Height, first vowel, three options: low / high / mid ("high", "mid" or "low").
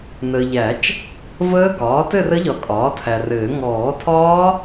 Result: mid